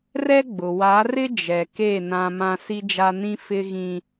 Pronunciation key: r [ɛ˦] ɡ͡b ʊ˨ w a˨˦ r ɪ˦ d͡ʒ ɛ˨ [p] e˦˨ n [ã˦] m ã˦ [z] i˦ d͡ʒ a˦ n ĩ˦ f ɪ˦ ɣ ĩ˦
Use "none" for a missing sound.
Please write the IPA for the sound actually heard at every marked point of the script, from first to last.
ɛ˦, k, ã˦, s

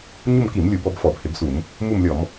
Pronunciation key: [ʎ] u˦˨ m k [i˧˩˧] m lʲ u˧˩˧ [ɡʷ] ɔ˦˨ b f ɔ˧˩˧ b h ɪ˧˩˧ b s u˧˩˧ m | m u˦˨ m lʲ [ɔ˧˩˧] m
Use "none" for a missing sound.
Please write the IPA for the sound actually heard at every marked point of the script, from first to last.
ɲ, i˧˩˧, b, ɔ˧˩˧

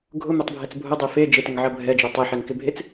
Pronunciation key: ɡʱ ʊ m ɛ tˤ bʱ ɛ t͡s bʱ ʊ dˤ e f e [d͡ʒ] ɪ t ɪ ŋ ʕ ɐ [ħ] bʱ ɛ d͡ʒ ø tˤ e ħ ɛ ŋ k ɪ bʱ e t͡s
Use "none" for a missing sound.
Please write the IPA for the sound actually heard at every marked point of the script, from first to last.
d͡ʒ, none

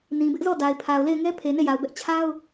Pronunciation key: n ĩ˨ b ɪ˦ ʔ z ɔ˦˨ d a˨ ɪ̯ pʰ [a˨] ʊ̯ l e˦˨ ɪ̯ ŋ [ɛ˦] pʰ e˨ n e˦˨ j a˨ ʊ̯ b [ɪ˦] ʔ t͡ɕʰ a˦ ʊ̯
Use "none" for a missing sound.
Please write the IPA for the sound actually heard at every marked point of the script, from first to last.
a˨, ɛ˦, ɛ˦

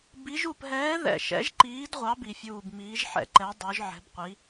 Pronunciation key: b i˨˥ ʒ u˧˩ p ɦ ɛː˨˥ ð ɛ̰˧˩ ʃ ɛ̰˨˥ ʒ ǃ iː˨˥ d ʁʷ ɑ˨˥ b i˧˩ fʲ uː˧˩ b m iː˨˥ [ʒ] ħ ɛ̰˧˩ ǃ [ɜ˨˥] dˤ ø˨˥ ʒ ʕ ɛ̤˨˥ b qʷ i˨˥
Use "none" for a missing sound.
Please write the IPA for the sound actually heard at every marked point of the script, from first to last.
ʒ, ɛ˨˥

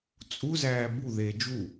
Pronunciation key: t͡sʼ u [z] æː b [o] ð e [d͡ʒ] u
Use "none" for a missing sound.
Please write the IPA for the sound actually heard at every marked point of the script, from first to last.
z, u, d͡ʒ

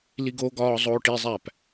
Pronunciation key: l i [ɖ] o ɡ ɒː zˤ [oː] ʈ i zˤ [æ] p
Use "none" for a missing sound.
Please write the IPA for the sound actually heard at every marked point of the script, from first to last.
ɡ, oː, æ

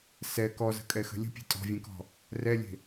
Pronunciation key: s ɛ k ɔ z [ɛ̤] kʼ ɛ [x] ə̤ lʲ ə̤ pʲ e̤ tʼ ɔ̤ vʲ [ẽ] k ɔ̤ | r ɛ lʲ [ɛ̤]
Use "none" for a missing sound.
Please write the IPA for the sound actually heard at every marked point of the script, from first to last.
ə̤, x, ẽ, e̤

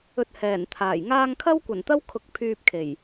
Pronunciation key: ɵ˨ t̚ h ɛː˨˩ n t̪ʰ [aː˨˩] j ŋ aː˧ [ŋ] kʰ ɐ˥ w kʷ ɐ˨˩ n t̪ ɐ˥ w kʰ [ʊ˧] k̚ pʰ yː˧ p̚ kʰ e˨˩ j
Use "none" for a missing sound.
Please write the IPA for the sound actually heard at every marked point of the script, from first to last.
aː˨˩, ŋ, ʊ˧

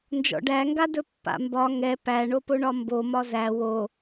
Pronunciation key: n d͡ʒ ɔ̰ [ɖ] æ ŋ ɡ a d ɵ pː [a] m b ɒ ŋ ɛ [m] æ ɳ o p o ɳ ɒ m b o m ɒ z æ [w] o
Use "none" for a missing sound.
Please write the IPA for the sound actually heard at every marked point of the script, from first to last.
ɖ, a̰, p, w

